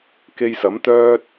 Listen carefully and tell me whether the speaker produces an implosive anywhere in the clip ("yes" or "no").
no